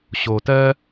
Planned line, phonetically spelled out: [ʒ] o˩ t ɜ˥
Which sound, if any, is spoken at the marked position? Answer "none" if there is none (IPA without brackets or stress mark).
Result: ɕ